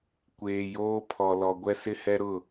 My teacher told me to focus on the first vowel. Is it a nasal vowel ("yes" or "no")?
no